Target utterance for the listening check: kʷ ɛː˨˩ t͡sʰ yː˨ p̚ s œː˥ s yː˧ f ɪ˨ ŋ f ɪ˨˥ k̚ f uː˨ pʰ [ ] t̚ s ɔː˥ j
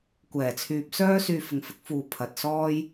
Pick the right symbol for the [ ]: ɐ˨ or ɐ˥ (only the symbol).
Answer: ɐ˨